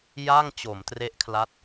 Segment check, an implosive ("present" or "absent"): absent